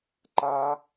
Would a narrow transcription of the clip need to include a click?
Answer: yes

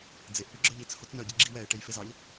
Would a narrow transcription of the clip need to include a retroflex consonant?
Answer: yes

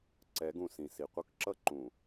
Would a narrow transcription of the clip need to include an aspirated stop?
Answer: no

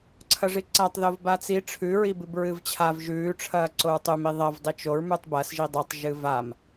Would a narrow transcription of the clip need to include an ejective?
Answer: no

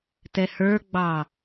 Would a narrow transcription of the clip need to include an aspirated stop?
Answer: no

